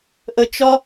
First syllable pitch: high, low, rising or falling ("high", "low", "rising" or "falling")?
high